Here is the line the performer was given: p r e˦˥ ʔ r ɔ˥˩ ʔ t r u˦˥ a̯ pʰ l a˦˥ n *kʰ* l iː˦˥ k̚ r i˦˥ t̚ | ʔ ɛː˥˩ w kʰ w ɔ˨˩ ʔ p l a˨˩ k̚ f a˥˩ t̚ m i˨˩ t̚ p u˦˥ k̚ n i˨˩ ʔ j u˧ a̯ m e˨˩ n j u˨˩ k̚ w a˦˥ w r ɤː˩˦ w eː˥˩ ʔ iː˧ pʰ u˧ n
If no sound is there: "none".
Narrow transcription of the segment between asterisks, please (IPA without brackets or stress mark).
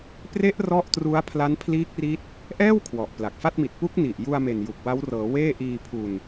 pʰ